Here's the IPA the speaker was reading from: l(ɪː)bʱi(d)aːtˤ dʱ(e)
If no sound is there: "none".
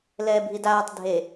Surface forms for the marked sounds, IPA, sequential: ɛː, d, e

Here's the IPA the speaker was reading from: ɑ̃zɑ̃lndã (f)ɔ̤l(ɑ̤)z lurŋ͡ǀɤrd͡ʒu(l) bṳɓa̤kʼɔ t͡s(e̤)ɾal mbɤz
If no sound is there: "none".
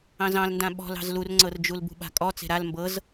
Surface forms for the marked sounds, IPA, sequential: ɓ, ɑ̤, l, e̤

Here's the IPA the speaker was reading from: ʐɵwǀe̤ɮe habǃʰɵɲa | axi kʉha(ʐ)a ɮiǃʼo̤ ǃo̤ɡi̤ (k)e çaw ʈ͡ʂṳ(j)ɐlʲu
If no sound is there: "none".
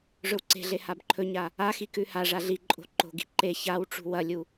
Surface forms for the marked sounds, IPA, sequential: ʐ, ǃ, w

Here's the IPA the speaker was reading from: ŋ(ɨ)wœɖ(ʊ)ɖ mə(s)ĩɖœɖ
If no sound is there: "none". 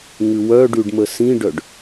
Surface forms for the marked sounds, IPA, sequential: ʉ, ʉ, s

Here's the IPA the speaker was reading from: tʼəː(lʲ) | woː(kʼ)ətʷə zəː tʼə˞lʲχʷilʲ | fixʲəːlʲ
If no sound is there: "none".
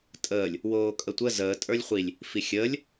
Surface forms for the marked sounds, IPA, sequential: lʲ, kʼ

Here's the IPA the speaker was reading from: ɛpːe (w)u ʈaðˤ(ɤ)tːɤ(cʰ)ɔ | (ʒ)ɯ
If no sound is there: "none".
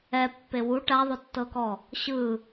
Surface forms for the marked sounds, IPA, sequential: w, o, k, ɕ

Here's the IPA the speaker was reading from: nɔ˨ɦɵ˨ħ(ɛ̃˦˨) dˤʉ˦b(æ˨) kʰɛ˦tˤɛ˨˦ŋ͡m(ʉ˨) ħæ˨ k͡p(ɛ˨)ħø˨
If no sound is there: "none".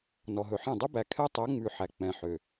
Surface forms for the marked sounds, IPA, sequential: ɛ̃˦˨, æ˨, ʉ˨, ɛ̃˨

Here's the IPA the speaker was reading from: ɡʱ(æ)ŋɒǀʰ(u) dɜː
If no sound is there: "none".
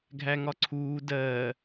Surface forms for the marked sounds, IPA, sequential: æ, uː

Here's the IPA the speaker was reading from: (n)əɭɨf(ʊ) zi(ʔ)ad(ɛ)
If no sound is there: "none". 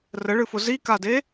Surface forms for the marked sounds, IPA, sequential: r, ʊ, k, e

